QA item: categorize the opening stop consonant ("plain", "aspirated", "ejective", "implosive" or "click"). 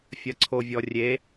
click